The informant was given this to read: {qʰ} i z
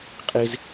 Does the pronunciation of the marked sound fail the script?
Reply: yes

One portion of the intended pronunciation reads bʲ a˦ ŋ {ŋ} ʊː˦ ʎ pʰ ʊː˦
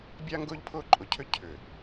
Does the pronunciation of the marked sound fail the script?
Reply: yes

